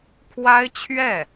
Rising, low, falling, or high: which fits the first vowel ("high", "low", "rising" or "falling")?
high